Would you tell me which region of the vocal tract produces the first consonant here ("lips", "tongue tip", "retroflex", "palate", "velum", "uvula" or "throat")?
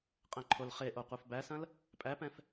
uvula